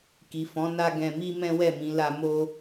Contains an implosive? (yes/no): no